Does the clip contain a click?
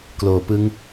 no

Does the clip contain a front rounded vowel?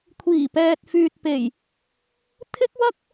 yes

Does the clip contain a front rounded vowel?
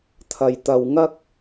no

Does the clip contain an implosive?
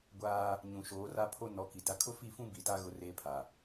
no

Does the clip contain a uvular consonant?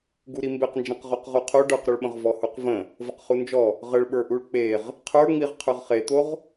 yes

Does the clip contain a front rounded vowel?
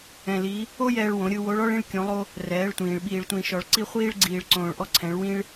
no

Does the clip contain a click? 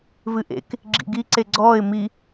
yes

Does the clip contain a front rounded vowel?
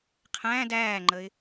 no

